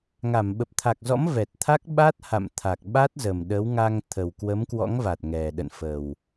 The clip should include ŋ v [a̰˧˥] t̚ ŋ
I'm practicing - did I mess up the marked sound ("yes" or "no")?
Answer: yes